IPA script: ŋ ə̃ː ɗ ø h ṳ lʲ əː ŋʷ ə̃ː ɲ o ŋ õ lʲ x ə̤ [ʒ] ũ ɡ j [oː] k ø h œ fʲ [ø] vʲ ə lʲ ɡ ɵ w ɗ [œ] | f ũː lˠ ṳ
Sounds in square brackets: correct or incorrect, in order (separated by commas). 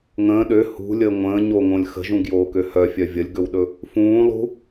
correct, correct, incorrect, incorrect